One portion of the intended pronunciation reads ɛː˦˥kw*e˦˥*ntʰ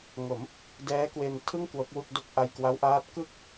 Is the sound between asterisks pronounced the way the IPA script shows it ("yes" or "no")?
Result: no